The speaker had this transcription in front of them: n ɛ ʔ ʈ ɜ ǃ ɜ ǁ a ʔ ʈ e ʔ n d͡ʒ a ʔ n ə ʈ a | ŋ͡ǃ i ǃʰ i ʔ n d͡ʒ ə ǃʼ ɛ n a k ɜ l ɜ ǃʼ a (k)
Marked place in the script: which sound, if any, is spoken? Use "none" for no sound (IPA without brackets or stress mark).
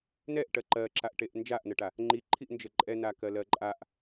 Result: ʔ